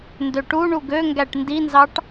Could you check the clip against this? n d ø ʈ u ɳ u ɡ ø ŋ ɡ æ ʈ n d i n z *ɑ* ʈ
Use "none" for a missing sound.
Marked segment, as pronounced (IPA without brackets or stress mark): ɑ